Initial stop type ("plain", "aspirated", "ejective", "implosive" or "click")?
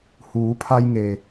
aspirated